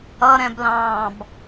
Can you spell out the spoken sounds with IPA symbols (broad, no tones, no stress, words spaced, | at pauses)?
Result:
ʌɾɛ̃blɑ̃ːb